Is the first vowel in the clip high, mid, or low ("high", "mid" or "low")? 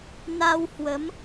low